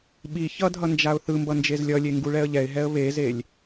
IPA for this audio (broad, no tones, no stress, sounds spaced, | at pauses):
ɓ i ç ʌ dʱ ʌ n d͡ʒ a ʊ̯ θ ɯ m b ʌ n d͡ʒ e z lʲ ʌ lʲ e ŋ ɡ u ɭ ɛ ə̯ ʎ ɛ ɪ̯ ɦ ɛ ə̯ β e z e lʲ